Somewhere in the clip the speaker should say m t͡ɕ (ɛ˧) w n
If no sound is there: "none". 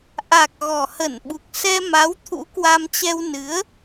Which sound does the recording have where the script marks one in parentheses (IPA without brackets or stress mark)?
ɛ˧